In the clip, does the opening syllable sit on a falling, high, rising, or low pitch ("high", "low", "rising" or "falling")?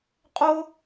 high